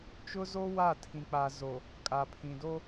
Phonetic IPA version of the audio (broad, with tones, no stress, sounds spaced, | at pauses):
t͡ʃ ʊ˦ z o˦ w a˦˨ tʰ ĩ˨ k͡p a˨ z o˨ | kʼ a˨ pʰ ĩ˨ d o˦